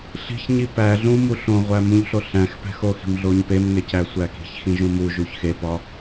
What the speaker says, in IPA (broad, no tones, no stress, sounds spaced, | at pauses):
ɬ i̤ ç ɲ i p æ ɮ ũ m u ɬ õ ʁʷ æ m ũ ʎ ɬ o ɬ æ̃ x p æ̤ x o x i̤ m ɮ o ɲ p e m ŋ e c æ sʷ æ k i̤ ç x ĩ ʒ ũ m u ʒ u ç x e p ɒ